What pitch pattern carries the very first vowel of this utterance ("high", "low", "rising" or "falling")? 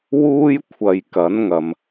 high